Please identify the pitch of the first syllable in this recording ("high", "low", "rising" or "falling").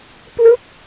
falling